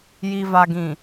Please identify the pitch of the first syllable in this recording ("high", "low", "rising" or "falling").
low